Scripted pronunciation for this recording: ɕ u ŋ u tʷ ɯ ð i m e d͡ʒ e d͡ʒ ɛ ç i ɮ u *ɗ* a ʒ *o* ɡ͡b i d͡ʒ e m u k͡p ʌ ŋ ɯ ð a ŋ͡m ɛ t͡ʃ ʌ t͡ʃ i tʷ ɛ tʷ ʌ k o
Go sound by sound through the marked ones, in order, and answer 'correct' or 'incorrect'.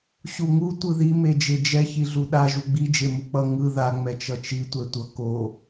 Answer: correct, incorrect

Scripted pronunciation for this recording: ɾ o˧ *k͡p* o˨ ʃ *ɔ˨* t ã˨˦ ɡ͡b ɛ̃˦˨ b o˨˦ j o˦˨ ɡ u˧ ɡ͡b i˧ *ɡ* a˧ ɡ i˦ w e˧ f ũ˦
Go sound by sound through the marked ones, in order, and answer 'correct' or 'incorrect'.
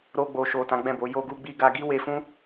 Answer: incorrect, incorrect, correct

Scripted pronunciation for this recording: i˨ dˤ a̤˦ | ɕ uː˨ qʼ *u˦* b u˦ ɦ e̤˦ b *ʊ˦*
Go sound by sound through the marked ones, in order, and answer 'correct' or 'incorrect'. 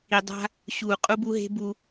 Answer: correct, incorrect

